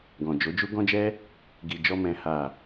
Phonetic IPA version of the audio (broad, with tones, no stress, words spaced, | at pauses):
ɡɔ̃˨d͡ʒo˨˦d͡ʒu˦ ɡɔ̃˦d͡ʒɛ˦ | ɡi˨d͡ʒɔ˧mɛ̃˨ ha˨